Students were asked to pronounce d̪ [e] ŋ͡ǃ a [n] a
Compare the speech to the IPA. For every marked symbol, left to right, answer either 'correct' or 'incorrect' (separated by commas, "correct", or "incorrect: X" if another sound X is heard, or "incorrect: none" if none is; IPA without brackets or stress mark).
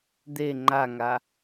correct, incorrect: ŋ